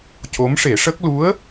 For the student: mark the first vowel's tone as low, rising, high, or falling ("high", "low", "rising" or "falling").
rising